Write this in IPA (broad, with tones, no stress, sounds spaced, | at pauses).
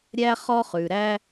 ɾʲ æ˥ χ ɔ˥ χ ʉ˨ ɾ æ˥